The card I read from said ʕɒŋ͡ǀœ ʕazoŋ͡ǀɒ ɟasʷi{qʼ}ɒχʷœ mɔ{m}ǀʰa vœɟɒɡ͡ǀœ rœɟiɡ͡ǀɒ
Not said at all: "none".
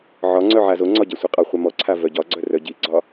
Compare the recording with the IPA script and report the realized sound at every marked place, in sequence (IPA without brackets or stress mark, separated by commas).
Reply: qʼ, none